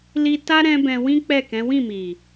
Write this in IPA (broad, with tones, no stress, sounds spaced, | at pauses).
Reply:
l i˧ t a˦ ɾ ɛ̃˦ b ɛ̃˧ w ĩ˦ k͡p ɛ˦˨ k ɛ̃˨˦ w ĩ˦˨ m i˨